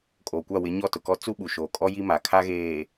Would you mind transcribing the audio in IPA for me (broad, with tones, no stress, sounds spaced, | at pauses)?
kʼ oː˨ kʷ a˦˨ w ɪ˨˦ ɲ ɔ˦˨ t ʊ˨ k ɔ˦ t͡s u˦ ɓ u˨ ʃ oː˨ kʼ ɔ˦ j i˦ m a˨ kʰ a˦ ɣ eː˨